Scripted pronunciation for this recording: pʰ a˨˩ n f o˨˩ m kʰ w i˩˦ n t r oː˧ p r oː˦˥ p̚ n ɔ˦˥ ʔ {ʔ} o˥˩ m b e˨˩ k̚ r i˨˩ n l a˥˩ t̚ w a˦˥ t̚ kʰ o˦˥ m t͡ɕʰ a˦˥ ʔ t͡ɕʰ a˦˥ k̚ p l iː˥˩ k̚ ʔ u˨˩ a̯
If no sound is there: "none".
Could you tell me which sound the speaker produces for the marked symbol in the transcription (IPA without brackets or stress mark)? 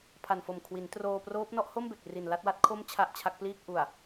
h